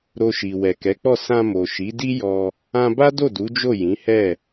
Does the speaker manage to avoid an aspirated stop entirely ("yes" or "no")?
yes